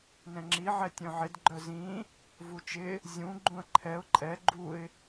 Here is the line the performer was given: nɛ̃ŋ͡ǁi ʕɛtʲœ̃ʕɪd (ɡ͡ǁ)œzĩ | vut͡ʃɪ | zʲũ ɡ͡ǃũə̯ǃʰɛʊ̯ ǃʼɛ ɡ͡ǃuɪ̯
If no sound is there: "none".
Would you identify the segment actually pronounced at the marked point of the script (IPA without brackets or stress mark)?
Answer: ɡ͡ǃ